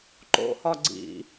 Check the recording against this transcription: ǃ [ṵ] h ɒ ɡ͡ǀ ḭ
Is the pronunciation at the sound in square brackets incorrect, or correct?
incorrect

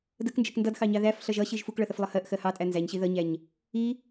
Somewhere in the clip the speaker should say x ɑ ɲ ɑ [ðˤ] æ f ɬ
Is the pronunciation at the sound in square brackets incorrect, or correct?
incorrect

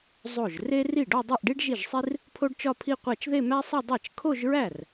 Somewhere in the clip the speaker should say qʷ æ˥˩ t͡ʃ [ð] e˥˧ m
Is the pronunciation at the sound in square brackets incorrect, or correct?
correct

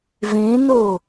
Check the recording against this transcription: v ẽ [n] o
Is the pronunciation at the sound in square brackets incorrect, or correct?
correct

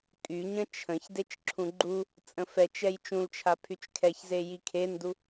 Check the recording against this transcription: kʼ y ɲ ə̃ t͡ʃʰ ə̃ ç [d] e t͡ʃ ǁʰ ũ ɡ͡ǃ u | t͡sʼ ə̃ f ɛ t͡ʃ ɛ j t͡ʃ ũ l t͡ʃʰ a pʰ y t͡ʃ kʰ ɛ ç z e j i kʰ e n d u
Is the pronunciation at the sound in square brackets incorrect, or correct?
correct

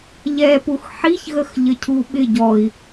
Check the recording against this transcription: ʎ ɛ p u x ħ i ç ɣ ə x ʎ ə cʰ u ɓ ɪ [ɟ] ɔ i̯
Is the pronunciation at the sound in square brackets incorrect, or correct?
correct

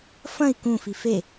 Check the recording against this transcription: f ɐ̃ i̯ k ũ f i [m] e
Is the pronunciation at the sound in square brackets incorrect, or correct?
incorrect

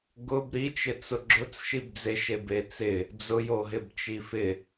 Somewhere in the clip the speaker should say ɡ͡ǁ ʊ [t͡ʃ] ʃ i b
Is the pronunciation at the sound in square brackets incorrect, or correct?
incorrect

